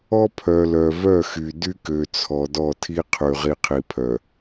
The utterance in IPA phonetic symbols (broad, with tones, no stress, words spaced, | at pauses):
ɔ˦pʰœ˨lœ˨ vœ˦˨xy˨ dy˦kø˨t͡sʰɔ˨ dɔ˦˨tʰi˦qʰy˨ ʁi˨qʰi˨pʰœ˨